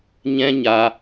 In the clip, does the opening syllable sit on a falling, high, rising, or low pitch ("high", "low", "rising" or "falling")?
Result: high